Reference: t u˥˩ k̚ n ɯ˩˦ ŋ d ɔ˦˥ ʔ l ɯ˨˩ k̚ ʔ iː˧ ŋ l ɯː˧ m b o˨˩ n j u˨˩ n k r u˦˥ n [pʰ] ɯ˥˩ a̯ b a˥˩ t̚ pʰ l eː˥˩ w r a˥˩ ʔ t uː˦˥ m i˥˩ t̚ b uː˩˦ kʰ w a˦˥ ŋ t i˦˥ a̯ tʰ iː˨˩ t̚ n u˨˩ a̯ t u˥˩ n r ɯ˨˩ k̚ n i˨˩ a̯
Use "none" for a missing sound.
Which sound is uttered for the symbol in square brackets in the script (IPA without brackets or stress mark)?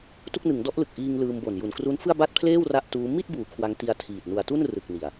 f